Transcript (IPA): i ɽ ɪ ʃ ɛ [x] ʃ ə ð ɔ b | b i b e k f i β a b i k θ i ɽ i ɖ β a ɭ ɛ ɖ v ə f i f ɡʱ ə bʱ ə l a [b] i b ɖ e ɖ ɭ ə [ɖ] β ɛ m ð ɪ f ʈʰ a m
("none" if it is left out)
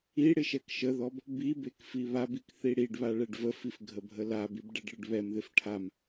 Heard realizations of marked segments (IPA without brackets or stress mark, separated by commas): k, b, ɖ